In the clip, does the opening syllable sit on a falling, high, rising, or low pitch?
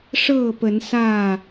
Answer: falling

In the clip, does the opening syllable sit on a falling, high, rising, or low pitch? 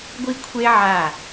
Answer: high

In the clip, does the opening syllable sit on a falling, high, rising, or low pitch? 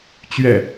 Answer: low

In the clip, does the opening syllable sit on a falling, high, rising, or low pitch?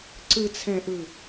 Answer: low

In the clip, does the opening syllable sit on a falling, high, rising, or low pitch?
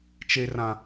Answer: low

